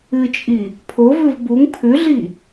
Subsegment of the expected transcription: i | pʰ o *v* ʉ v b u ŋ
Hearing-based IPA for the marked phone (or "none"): v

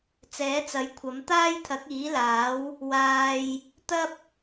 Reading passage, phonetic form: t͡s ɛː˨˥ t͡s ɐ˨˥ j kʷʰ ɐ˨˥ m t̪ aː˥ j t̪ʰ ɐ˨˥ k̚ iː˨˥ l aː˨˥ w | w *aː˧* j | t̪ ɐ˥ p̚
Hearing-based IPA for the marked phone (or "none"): aː˧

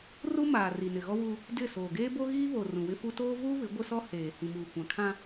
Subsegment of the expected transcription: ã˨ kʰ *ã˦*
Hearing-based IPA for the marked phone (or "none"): ã˦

